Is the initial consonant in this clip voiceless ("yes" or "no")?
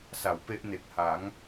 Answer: yes